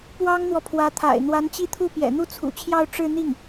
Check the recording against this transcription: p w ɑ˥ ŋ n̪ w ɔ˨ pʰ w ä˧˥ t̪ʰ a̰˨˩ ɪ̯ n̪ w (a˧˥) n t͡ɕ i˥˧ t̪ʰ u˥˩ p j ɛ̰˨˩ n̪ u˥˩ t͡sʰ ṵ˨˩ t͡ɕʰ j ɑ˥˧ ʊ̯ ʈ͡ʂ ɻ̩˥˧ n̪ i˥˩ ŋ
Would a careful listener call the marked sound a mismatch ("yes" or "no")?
no